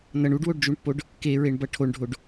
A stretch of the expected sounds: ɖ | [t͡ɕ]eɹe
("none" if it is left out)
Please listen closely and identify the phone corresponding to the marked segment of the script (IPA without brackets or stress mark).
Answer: k